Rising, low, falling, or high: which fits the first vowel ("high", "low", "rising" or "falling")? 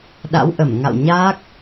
rising